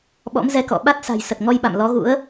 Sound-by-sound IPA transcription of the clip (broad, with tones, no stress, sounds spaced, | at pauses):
ɓ ɔ̰˧˥ m z ɛ˧ k ɔ̰˧˨ ɓ a˦˥ t̚ s a̤˨˩ j s ə˨˩ t̚ ŋ ɔ˧ j ɓ a̰˧˨ m l ɔ˨˦ ɣ ṵ˧˥ ə̯